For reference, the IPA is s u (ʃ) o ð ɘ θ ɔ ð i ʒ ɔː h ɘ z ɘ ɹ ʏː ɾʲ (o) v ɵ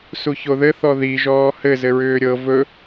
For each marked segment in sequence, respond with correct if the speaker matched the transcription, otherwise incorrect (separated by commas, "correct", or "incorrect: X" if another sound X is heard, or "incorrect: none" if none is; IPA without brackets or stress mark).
incorrect: ç, incorrect: ɤ